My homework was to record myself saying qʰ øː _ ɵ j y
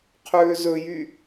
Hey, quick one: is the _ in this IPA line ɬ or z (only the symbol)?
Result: z